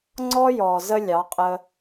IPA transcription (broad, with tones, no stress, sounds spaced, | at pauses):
ŋ͡ǀ ɔ˦ j ɔ˨ z ə˦ lʲ ɑ˨˦ qʼ ə˧